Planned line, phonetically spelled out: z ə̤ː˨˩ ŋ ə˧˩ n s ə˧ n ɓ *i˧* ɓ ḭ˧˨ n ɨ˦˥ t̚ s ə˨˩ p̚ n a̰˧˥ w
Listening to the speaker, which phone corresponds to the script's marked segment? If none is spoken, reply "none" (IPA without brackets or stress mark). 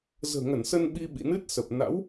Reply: i˧